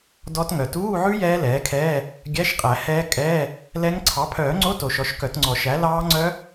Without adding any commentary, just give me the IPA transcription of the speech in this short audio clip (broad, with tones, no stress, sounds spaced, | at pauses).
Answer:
d ɔ˦˥ t ŋ œ˩ t uː˧˥˧ ʕ ʉ˦˥ j ɛː˦˥ l ɛː˩˥ kʰ ɛː˧˥˧ | ɡʲ æ˧˥˧ ʃ qʼ æ˨˩˦ h ɛː˦˥ kʼ ɛː˧˥˧ | l ɛ˦˥ ŋ ǀʰ ɑ˩˥ pʰ œː˨˩˦ ŋ͡ǀ o˧˥˧ t o˨˩˦ ʃ ɔ˩˥ ʃ k œ˨˩˦ t ŋ͡ǀ ɔ˨˩˦ ʃ æ˩˥ l ɑː˦˥ ŋ͡ǀ œ˦˥